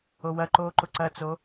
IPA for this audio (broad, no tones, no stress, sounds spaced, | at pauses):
o w ɐ ǃ oː ǃ ʊ ǀ ɐ t͡s o